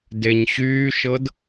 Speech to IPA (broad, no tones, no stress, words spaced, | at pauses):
deɲɕyːʃɤd